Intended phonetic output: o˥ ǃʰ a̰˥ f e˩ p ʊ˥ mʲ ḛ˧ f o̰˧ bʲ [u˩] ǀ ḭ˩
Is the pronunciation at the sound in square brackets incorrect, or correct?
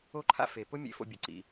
incorrect